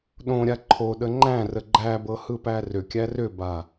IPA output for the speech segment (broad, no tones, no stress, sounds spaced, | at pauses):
ɗ õ ɾʲ a ǃʰ o ɗ ə ŋ͡ǃ æ̃ r ə ɡ͡ǃ æ b ɤ h ɯ p æ r ʏ kʲ æ r ʏ b a